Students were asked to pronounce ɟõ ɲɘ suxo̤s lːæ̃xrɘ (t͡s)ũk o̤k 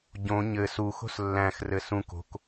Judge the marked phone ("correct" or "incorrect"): incorrect